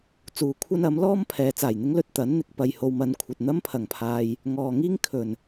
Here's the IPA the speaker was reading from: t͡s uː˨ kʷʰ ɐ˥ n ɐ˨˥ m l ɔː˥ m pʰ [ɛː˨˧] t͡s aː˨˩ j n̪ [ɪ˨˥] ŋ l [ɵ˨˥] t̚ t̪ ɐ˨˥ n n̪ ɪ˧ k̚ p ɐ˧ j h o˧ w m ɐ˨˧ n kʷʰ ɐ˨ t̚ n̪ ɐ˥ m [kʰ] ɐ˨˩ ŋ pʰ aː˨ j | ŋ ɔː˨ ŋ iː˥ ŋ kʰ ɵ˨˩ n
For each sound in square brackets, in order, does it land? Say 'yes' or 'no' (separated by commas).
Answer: yes, no, no, no